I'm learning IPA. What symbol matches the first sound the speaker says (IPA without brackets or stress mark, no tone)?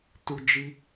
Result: t